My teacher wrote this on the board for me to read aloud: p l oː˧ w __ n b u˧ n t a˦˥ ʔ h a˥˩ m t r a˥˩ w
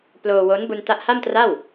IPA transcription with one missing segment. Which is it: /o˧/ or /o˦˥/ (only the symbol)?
o˦˥